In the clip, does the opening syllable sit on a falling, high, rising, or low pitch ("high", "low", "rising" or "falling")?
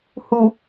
low